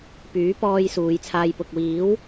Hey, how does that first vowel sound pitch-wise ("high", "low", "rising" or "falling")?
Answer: rising